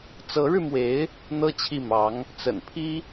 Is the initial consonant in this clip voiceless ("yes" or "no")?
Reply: yes